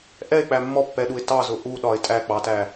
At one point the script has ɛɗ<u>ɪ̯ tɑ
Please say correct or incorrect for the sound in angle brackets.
correct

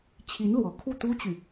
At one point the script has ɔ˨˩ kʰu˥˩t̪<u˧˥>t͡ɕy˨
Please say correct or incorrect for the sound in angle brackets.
incorrect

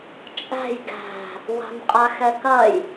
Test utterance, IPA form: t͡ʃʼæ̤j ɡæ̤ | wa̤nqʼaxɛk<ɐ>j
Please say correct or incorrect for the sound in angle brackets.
correct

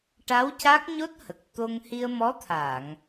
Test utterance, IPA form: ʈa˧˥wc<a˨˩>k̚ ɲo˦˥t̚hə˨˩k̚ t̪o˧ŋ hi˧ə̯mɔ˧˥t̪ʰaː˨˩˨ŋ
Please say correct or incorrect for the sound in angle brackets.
incorrect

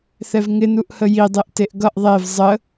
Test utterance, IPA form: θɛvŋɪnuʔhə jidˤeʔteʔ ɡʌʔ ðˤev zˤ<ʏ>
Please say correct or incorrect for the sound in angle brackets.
incorrect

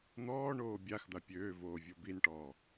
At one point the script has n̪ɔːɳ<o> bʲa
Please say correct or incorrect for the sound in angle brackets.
incorrect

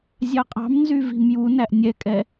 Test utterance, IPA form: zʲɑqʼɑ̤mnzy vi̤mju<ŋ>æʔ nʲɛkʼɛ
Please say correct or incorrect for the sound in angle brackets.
incorrect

